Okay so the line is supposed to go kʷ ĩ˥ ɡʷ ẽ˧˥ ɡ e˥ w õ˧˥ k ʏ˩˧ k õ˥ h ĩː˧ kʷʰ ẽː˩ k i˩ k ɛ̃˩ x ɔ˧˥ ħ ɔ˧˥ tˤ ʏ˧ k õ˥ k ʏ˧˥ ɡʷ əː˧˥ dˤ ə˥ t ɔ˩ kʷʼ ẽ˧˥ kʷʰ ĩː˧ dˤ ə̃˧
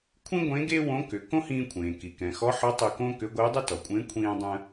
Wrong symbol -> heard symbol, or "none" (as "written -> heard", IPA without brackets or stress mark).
kʷ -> kʷʰ